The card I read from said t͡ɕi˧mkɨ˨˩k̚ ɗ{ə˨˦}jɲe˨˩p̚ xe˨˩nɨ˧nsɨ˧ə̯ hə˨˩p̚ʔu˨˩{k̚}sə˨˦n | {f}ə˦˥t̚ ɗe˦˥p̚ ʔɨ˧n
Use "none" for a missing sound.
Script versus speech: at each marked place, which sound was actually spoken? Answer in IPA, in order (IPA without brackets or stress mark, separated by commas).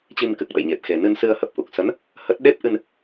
ə̰˧˨, k̚, h